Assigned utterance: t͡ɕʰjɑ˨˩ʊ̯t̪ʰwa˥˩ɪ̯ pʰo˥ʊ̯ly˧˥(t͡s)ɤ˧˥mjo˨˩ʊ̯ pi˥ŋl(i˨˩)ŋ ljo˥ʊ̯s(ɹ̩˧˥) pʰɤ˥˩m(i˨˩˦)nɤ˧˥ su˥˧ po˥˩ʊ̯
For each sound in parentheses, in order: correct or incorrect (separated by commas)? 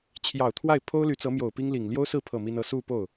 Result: correct, correct, incorrect, incorrect